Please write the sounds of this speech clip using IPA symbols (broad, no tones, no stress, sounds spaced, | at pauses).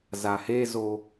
z a h e z o